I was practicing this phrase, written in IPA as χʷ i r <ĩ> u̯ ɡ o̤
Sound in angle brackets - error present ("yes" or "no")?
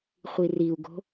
yes